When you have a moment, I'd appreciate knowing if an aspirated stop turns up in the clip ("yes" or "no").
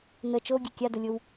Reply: no